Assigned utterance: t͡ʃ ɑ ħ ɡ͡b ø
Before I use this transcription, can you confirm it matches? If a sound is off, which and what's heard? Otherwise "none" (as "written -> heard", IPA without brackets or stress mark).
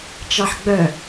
ø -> œ